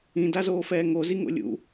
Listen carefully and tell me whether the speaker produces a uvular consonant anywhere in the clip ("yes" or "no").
no